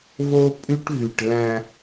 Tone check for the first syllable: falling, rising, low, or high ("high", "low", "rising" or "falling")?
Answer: high